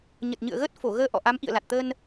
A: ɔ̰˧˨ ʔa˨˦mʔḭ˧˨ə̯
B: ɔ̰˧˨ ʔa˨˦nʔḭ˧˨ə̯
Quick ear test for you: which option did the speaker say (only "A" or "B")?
A